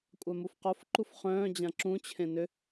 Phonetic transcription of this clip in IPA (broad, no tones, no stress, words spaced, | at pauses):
kʷʼamufqofǃuf χœ̃ː d͡ʑãǁũt͡ɕʰẽ nʏ